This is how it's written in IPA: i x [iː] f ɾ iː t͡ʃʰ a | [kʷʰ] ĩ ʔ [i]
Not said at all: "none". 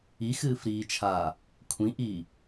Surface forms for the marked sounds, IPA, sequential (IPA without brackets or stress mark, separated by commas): ɨː, kʷʰ, i